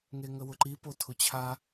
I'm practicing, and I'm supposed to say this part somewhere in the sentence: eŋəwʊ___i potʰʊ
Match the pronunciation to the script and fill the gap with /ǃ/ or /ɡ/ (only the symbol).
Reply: ǃ